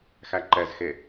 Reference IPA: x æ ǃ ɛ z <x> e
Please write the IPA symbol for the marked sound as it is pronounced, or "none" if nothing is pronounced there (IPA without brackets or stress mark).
x